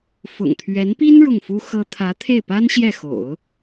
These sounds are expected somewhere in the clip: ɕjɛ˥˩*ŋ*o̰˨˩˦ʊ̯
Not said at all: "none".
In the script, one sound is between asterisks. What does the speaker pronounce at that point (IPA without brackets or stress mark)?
x